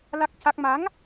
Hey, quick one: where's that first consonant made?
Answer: tongue tip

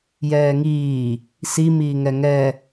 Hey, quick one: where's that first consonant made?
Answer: palate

